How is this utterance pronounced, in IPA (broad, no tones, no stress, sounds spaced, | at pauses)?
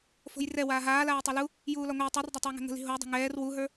f o̤ j r ɛ w aː ɦ aː l aː i̯ tˤ ɛ l u | j uː l ɒ ŋʷ a i̯ tˤ o r dˤ a tˤ ɛ u̯ ŋ ɛ̤ ŋ ə̤ l i̤ ɦ o u̯ dˤ ɛ̤ ŋ ɛː r w u ɦ ə˞